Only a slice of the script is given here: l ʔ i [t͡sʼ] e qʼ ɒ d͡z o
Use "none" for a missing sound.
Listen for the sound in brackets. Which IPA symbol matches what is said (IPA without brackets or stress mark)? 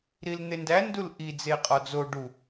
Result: d͡z